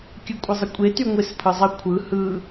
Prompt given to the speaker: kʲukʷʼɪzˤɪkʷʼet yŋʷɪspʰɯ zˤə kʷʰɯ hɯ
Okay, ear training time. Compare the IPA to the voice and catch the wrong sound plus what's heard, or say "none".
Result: u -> ɯ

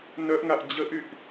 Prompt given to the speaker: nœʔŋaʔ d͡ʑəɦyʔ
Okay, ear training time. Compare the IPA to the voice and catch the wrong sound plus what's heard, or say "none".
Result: ɦ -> ʔ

